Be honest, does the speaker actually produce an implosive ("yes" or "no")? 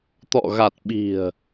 yes